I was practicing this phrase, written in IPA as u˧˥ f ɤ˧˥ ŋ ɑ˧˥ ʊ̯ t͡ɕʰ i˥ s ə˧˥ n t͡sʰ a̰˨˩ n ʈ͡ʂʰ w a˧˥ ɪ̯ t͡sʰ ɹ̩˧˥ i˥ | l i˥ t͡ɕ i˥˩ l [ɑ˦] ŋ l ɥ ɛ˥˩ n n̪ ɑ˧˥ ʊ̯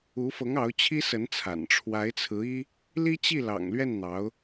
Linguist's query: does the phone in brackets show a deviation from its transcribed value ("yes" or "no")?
yes